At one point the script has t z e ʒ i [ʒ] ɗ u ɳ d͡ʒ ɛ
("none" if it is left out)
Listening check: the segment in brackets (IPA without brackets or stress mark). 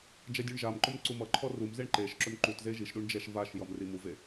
ʃ